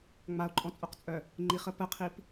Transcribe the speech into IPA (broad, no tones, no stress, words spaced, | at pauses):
ŋ͡mao̯ǃʼɔ̃t͡sʼoqt͡sʼœ | ŋ͡ǃiχə pəqʰip